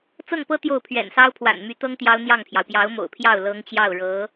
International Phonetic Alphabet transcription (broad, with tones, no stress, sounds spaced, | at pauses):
t͡s ɤ˥˩ ŋ p ɤ˥ t̪ j o˥˩ ʊ̯ pʰ ɥ ɛ̰˨˩ n s ɑ˥ ʊ̯ pʰ w a̰˨˩ n m y˧˥ t̪ ɤ˥ ŋ t̪ j ɑ˥ ʊ̯ n̪ j ɑ˥˩ ŋ pʰ j ɑ˩ ʊ̯ p j ɑ˧˥ ʊ̯ m o̰˨˩ ʊ̯ pʰ j ɑ˥˩ ʊ̯ l ɤ˧˥ ŋ t͡ɕ j ɑ˥˩ ʊ̯ ɻ ɤ˧˥